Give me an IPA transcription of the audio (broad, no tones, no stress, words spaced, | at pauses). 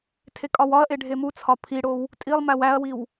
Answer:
tʰekʼɒwɒɐ̯ʔe ɖʱemut͡sʰɒ pʰiɽow | tʼilˠ mæwæɐ̯wiw